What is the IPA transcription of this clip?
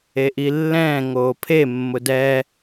e ʔ i lː ɛ̃ː ŋ oː pʰ e mː ʊ d ɛ

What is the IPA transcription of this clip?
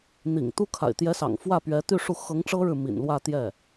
n̪ ḭ˨˩ ŋ t̪ u˥ kʰ a̰˨˩ ɪ̯ t̪ j ɛ˧˥ s ɑ̰˨˩ ŋ f w ä˥˩ p ɥ ɛ˧˥ t̪ y˥˧ ʂ u˥˩ x ɤ˧˥ ŋ ʈ͡ʂ ɤ˥ ɻ ɻ̩˨ m ḭ˨˩ n l w ä˥˧ t̪ j ɛ˥˩

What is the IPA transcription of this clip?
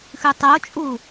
x ʉ tˤ o t͡ʃʼ u

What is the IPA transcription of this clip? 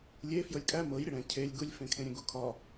lʲ e f j ɤ lʲ kʼ æ m ɤ j ɾʲ ə ɽ ɛ̃ cʰ e lʲ ɡ u lʲ f ẽ kʰ ẽ ɾʲ ɛ̃ ɡ u kʰ ɒ

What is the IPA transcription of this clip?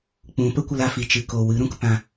k͡p ũ˨˦ p ə˦ kʷ ə˧ l a˨ f i˨ t͡ʃ ɨ˨ k o˨ w ɨ˨˦ ɾ ũ˧ k p ã˧

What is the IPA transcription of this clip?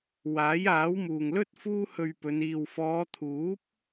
w aː˨˥ j aː˨˥ w m uː˨ ŋ l ɵ˥ t̚ f uː˥ h ɵ˧ ɥ p ɵ˨˧ n iː˨ w f ɔː˨˧ t̪ʰ uː˨˥ p̚

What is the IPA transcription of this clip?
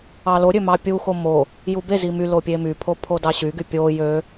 ɑ l o ɾʲ ø m ɑ pʲ u x o m o | j u b e z i m y l o pʲ e m y pʰ o pʰ o d ɑ ɕ y ɡ y pʲ o j ø

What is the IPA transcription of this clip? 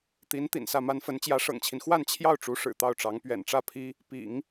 t̪ i˧˥ n t̪ ḭ˨˩ n s ä˥˩ m a˥ n f ə˧˥ n t͡ɕ j ä˧˥ ʂ ɤ̰˨˩ ŋ t͡ɕʰ i˦ n x w a˥˧ n t͡ɕʰ j ɑ˥˩ ʊ̯ ʈ͡ʂ u˧˥ ʂ ɻ̩˨˩ t̪ ɑ˥˩ ʊ̯ ʈ͡ʂ ɑ˧˥ ŋ p ɥ ɛ̰˨˩ n ʈ͡ʂ ä˥˩ pʰ i˥ | p ḭ˨˩˦ ŋ

